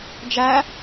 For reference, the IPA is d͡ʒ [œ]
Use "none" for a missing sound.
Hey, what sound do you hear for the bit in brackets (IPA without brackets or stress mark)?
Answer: æ